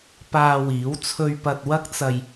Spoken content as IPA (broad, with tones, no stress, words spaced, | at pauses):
paː˧wiː˨˥w t͡sʰɵ˧ɥ pɐ˧t̚wɐ˥k̚t͡sɐ˧j